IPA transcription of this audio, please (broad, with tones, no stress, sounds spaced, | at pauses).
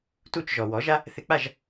t u˥˩ t͡ʃ ʒ ɔ˩ w ɔ˩˥ ʒ a˥ | θ ɪ˧ k͡p a˥˩ ʒ